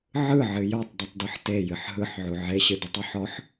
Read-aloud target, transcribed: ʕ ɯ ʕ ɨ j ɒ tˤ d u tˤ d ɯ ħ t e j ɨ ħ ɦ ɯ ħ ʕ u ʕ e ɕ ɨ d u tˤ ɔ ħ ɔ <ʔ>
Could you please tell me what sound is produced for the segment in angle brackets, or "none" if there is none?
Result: ħ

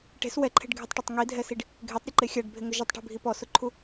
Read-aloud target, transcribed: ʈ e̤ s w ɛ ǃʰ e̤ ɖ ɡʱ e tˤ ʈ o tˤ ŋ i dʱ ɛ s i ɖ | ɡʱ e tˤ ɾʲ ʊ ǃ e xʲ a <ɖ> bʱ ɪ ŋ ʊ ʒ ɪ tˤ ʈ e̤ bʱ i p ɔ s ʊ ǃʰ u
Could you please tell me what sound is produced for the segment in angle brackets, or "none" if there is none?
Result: ɖ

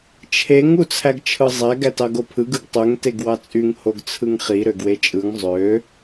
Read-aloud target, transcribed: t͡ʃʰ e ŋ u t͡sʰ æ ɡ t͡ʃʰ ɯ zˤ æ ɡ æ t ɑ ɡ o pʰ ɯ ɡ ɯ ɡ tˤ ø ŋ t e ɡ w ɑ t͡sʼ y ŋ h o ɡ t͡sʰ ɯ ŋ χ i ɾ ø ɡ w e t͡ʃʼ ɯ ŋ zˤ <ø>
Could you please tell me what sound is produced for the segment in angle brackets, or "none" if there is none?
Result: ø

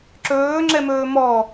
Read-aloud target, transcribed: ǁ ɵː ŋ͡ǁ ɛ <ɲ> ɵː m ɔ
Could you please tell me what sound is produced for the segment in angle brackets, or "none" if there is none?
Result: m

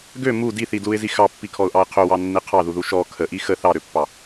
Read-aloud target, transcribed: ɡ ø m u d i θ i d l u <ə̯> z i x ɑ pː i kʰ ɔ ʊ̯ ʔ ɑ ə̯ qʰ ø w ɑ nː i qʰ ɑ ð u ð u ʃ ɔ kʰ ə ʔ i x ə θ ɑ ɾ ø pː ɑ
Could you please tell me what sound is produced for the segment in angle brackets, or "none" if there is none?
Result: ɪ̯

